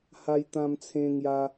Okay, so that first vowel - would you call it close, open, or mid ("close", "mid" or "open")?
open